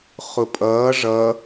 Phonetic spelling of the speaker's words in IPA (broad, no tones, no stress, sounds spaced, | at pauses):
χ ʊ pʼ ʌː ʐ ʌ